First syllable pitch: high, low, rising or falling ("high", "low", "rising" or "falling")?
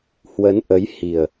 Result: rising